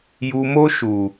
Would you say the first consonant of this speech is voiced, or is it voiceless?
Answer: voiced